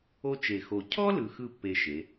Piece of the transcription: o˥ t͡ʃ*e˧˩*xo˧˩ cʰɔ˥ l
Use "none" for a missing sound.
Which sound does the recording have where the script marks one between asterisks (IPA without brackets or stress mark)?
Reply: e˧˩